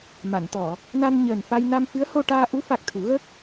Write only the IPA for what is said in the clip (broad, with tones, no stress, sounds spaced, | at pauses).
m a˨˩˨ n t̪ ɔ˨˩˨ | n a˧ n ɲ əː˨˩ n f a˧ j n a˧ m f ɨ˧˥ ə̯ h o˧ ʈ aː˧ ʔ u˧˥ f a˨˩ k̚ t̪ʰ u˨˩˦ ɣ ə˦˥ k̚